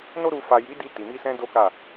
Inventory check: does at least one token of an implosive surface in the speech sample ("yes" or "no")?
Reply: no